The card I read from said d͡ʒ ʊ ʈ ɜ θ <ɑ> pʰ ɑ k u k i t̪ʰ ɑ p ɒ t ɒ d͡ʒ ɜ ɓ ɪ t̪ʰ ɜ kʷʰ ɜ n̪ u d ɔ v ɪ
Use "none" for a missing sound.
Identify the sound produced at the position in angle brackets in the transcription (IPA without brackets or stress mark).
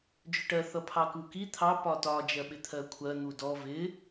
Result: ʌ